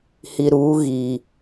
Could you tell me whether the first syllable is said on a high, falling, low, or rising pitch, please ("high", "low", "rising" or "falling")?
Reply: low